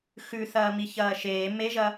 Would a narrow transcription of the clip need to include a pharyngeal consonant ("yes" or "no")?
no